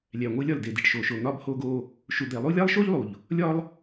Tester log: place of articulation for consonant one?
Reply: alveolar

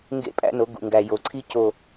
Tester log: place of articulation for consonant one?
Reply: velar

